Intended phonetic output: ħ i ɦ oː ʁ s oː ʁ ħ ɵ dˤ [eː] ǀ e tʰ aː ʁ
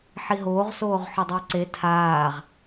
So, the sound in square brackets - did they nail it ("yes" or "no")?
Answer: no